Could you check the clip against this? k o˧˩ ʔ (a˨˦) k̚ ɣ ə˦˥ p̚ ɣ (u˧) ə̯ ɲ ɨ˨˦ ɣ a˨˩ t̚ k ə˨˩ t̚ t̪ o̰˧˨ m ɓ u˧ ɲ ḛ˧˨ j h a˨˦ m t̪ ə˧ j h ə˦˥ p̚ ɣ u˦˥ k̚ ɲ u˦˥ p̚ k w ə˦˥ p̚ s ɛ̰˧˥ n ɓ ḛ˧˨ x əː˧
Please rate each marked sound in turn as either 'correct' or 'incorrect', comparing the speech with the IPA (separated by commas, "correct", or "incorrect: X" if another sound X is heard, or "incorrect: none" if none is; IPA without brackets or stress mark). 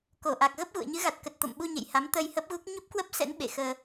incorrect: a˨˩, incorrect: ṵ˧˨